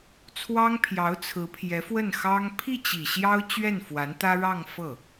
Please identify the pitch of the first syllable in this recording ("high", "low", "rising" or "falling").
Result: high